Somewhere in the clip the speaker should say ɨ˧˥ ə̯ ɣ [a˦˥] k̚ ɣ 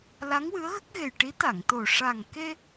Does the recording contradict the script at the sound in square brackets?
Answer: yes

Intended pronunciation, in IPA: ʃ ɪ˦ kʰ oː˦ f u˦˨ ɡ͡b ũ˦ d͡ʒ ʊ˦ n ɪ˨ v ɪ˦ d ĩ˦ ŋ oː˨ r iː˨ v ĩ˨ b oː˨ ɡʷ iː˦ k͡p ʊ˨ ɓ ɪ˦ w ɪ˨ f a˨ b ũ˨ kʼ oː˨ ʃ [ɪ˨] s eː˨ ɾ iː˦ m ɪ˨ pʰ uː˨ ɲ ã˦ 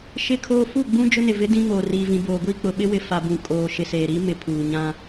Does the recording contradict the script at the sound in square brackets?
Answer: no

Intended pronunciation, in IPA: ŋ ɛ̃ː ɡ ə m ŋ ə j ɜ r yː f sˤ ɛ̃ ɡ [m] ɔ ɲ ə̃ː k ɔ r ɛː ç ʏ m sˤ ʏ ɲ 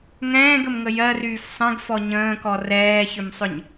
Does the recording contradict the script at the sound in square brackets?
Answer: yes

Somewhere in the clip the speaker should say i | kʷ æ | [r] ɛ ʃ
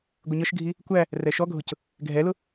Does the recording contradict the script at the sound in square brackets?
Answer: no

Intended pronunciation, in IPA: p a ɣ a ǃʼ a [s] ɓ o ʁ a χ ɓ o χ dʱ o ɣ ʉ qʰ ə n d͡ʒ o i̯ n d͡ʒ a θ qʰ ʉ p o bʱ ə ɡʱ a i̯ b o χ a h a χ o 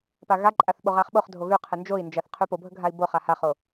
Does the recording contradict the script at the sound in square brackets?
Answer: yes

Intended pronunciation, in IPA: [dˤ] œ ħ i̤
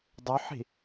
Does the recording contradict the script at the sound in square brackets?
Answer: no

